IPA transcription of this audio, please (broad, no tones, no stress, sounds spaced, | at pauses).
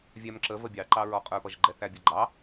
vʲ æ m ǁ ə v ə bʲ ɑ ǃ ɑ ɹ ɔ qʼ ə˞ p ʌ ʒ ɡ͡ǃ ɛ θ æ bʲ ə˞ ɡ͡ǃ ɑ